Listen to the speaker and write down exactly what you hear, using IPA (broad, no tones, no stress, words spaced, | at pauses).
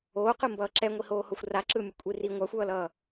oːqɯmbʌː ǁɛŋʷihoːhoxʷ raǁɯːmʲo kʷʼiri ŋʷaxʷʌːlʌː